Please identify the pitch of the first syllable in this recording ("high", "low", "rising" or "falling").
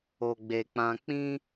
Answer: low